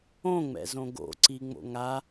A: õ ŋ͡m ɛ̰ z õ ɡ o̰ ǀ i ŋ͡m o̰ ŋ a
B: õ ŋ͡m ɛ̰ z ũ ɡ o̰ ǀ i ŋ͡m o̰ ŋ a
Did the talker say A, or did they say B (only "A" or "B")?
A